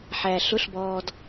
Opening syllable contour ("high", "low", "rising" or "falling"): low